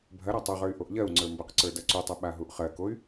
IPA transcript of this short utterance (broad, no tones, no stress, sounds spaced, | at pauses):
bʱ ɐ ɾ a tˤ o ʁ ə˞ y̯ ʔ o ʔ ʎ ɜ u̯ ŋ͡ǀ ə˞ m b ə q ǀ ə˞ d ɐ ǀ u tˤ ɐ ɓ a ɦ u ʔ χ ɜ k o y̯